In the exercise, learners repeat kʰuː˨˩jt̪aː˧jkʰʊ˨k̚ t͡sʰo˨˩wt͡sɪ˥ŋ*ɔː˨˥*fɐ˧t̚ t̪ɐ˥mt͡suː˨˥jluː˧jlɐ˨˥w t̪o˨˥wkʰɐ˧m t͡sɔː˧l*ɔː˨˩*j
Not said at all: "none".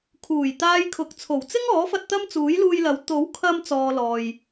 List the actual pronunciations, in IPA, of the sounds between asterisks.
ɔː˨˥, ɔː˨

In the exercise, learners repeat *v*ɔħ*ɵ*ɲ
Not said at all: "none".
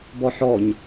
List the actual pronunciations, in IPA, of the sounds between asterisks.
b, ɔ

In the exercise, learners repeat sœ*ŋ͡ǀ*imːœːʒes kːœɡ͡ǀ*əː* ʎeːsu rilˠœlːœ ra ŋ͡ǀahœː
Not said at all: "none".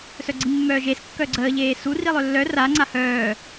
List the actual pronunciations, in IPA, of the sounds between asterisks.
ɡ͡ǀ, əː

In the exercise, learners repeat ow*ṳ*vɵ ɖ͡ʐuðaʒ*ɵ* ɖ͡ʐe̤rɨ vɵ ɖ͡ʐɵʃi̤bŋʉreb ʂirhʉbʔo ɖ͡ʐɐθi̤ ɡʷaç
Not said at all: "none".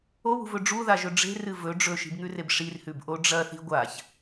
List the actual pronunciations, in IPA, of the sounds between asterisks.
ṳ, ɵ

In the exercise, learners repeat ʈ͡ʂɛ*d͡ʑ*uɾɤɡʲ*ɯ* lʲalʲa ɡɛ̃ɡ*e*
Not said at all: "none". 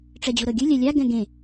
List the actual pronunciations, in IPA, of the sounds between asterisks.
d͡ʑ, ɯ, ẽ

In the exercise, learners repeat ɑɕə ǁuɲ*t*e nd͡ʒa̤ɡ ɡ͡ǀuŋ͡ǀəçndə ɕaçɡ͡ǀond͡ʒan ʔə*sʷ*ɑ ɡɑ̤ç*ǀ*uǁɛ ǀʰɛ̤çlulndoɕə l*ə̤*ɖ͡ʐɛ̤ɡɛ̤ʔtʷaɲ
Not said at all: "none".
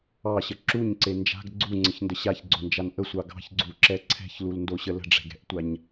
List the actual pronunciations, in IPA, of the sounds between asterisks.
ǀ, sʷ, ɡ͡ǀ, ə̤

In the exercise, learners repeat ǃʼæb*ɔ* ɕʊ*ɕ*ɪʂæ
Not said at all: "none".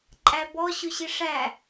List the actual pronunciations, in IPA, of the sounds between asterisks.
ɔ, ɕ

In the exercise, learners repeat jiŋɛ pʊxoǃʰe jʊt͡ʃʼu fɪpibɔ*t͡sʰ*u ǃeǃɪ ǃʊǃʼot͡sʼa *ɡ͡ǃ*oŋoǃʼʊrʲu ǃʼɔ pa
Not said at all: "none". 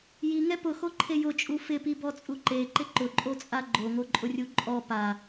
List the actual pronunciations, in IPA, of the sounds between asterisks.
t͡sʼ, ɡ͡ǃ

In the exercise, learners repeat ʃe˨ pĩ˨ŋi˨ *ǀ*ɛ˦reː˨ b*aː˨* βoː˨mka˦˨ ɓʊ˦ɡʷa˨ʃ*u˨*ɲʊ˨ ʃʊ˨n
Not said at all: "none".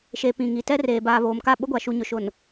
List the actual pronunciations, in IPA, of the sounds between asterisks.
t, aː˨, u˨

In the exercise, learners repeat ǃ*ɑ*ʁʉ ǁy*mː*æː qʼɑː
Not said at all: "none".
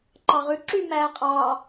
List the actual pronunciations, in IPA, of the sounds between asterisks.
ɑ, m

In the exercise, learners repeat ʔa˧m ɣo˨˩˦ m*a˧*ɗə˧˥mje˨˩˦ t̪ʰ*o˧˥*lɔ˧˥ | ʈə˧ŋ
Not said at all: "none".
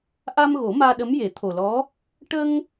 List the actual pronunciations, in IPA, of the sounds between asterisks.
aː˧, o˨˩

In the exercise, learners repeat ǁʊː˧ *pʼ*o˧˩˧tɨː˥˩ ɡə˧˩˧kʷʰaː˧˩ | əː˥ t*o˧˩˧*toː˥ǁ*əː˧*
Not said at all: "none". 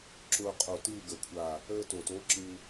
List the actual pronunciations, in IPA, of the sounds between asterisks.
qʼ, o˧˩˧, ɨː˧

